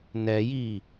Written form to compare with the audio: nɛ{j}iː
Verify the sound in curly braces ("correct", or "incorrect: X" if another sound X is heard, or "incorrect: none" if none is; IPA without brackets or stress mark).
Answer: correct